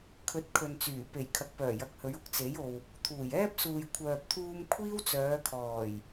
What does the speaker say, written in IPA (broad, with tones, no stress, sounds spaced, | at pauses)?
kʰ ɵ˨˥ t̚ kʰ ɵ˨ n t͡s yː˨˩ p e˨˩ j kʰ ɐ˨˥ k̚ p œː˨˩ j ɐ˨˥ k̚ h ɵ˨˧ ɥ ʊ˨ k̚ t͡s e˨˥ j o˨ w | t̪ʰ uː˨˩ j ɛː˥ p̚ s uː˨ j kʷʰ œː˨ p̚ t̪ʰ uː˧ m kʷʰ iː˥ w t͡s œː˨˧ kʰ ɔː˨˩ j